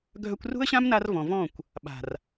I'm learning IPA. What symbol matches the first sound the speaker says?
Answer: ɡʱ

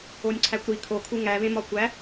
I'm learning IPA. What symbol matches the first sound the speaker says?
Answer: o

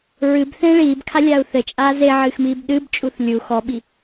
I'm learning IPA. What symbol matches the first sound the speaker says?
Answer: ɹ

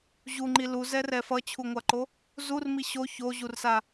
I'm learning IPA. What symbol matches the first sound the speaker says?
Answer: ʑ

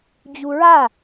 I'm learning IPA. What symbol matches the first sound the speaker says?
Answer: d͡ʑ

